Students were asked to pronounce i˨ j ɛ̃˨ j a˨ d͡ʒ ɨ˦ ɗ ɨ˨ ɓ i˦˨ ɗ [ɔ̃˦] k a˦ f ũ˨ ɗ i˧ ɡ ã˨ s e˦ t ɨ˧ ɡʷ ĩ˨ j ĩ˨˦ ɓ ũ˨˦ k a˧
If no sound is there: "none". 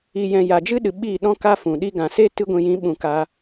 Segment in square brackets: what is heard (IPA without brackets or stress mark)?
ɔ̃˦